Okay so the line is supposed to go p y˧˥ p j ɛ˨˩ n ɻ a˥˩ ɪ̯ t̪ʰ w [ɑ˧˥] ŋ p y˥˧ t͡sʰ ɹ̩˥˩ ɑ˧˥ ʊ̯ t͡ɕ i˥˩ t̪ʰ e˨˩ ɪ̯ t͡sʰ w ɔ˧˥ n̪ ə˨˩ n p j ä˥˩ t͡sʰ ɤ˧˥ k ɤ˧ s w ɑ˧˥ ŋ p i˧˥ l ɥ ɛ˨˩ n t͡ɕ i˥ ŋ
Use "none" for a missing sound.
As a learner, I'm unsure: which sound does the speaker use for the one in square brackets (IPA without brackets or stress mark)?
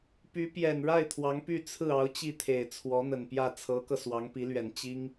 ɑ˧˥